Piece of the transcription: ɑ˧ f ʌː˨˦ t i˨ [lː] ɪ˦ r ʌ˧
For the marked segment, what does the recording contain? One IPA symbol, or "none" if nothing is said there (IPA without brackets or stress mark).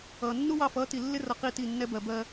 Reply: lː